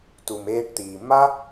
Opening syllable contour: low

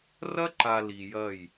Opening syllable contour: high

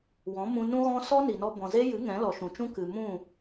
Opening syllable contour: rising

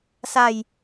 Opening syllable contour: low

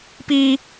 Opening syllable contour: high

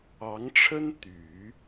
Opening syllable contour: rising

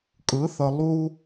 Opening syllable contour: rising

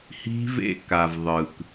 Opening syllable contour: high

